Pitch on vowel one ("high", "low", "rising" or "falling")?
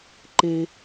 high